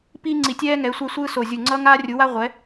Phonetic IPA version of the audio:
p iː˥ ŋ͡ǀ i˧˩ tʲ ɛː˥ ŋ ɛ˨˥ sʷ a˥ sʷ ɯː˥ s o˧˩ zʲ u˧˩ ŋ͡ǀ ʌː˥ ŋ aː˥ rʲ u˨˥ w a˥ ʁʷ ɛ˨˥

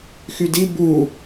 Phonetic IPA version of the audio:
x y d i b u

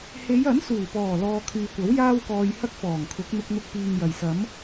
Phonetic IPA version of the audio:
h e˨˧ j ɐ˨˥ n s uː˨˩ p ɔː˨˩ l ɔː˧ kʰ yː˨ kʷ ɐ˨˥ w j aː˥ w k ɔː˧ j h ɐ˥ k̚ f ɔː˨˩ ŋ kʰ ʊ˨˥ k̚ n̪ ʊ˧ k̚ n̪ ʊ˧ k̚ p iː˨ ŋ j ɐ˨˩ j s ɐ˨˥ m

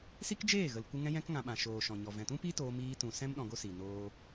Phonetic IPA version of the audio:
s i˦ k d͡ʒ eː˦˨ ɣ ə˨ l kʷ ɨ˧ ŋ ɛ̃˦ j ɛ̃˦ k ŋ ã˧ ɓ ã˨ ʃ oː˨ ʃ ɔ̃˨ ɲ ɔ˨ v ɛ̃˨ t ũ˦ p i˦ t oː˧ m iː˧ t ũ˨ s ɛ̃˦ m ɗ ɔ̃˧ ɡ o˦ s i˨ n oː˧

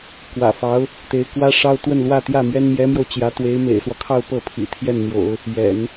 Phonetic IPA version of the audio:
k w ä̰˨˩ f ɑ˧˥ ʊ̯ | t̪ e˧˥ ɪ̯ k w ä˥ ʂ ɑ˥ ʊ̯ t̪ w ə˥˧ n l w ä˥˧ t̪ j ä˥˩ m ɥ ɛ˥ n m j ɛ˧˥ m j o˧ ʊ̯ t͡ɕ j ä˧˥ t̪ w e˧˥ ɪ̯ m ḛ˨˩ ɪ̯ s w ɔ˦ kʰ ɑ˥˧ ʊ̯ p ɤ˥˩ pʰ ḭ˨˩ t̪ʰ j ɛ˥˩ n n̪ j o̰˨˩˦ ʊ̯ | j ɛ̰˨˩˦ n

